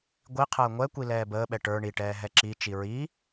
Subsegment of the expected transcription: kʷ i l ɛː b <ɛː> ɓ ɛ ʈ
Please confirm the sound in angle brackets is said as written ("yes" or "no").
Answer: no